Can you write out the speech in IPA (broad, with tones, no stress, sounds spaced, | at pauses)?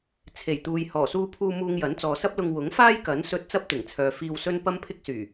t͡sʰ e˨˩ j t̪ uː˨ j h ɔː˨˩ s uː˧ pʰ uː˧ m uː˧ ŋ j ɐ˨˥ n t͡s ɔː˨ s ɐ˥ p̚ l ʊ˧ ŋ w ʊ˨˥ ŋ f aː˥ j k ɐ˨˥ n s ɵ˧ t̚ t͡s ɐ˥ p̚ t̪ ɪ˨˩ ŋ t͡sʰ œː˨ f iː˧ w s ɵ˥ n p ɐ˥ m pʰ ɪ˥ k̚ s yː˨˩